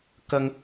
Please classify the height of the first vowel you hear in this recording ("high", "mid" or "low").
low